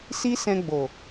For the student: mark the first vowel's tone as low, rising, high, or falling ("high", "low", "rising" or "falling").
high